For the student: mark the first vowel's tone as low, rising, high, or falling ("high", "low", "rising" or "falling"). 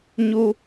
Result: high